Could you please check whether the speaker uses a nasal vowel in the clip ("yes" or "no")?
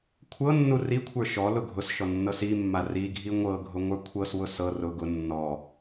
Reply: no